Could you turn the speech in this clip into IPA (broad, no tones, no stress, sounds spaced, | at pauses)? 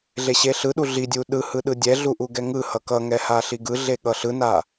ɮ e ɕ e ɬ ɯ ɗ u ɮ i dʲ u ɗ ɯ h ɯ ɗ ɯ dʲ ɛ ɮ u ʔ u ɡ ɛ ŋ ɯ h ʌ k ʌ ŋ ɛ h a ɬ i ɡ ɯ ɮ e ɠ ʌ ɬ ɯ n a